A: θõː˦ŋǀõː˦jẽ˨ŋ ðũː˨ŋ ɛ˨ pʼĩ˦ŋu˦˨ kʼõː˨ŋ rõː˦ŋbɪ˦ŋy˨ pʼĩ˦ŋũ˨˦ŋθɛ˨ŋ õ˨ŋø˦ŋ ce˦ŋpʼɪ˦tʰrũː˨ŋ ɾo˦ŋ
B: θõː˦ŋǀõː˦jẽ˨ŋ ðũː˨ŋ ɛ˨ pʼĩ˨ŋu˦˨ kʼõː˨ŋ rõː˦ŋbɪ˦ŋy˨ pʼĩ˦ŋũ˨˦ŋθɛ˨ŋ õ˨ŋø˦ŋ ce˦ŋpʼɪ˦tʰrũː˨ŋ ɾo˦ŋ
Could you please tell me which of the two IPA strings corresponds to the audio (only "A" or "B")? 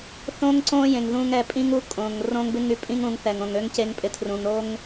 A